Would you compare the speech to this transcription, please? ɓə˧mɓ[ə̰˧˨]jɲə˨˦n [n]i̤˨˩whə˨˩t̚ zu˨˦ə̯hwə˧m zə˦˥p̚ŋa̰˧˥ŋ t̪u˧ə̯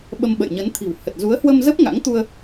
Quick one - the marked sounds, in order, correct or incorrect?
correct, incorrect

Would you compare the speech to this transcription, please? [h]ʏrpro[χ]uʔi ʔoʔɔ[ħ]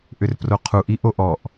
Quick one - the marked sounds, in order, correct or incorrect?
incorrect, incorrect, incorrect

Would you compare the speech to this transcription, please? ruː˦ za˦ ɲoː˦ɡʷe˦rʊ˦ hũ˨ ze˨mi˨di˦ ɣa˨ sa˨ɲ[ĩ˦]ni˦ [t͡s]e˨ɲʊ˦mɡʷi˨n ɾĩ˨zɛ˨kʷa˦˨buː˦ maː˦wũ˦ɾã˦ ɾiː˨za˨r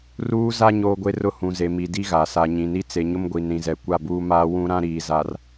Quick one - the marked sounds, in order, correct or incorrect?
incorrect, correct

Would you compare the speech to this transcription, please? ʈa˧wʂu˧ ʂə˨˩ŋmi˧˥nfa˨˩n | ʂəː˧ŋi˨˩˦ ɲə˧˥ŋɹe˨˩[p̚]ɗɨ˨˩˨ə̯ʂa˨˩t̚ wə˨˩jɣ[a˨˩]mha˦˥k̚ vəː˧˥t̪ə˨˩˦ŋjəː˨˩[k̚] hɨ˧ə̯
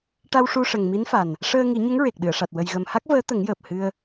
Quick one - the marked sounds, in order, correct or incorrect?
incorrect, incorrect, incorrect

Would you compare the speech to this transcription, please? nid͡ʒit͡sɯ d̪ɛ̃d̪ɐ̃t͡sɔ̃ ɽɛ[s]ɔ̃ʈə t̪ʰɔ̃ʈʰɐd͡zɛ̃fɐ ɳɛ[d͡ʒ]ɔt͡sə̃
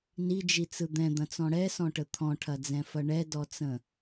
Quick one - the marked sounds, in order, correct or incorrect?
correct, incorrect

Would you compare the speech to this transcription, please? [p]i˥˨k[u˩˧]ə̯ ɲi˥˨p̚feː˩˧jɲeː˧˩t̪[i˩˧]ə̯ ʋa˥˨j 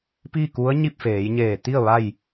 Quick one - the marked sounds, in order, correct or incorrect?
correct, incorrect, incorrect

